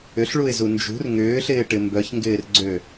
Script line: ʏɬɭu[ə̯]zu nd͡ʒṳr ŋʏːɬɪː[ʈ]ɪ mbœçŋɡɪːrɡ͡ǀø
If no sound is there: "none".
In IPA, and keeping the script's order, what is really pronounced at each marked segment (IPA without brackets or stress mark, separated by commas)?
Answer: ɪ̯, ʈ